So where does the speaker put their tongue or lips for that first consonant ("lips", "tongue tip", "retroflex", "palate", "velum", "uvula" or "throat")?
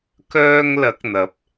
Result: velum